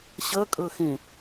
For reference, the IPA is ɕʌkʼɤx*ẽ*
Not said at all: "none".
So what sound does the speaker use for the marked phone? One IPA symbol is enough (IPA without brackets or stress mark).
ẽ